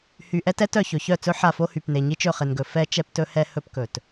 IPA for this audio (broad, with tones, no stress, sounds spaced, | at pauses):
h y˨ ʔ ɛ˦ t ɛ˦ t œ˨ ç ɵ˨ ç œ˦˨ t͡s ɵ˦ ħ a˦˨ f o˦ h y˨ p n e˨ ɲ i˦ t͡ʃ ɵ˦˨ χ e˨ n ɡ ɵ˨ f ɛ˦ t͡ʃ ɛ˦ p t ɵ˦ h ɛ˦ h ɵ˦ p k ɵ˨ t